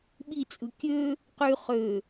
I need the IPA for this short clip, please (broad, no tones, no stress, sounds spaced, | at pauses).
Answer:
ɓ i t͡sʼ ɯ kʲ ø | q y χ ø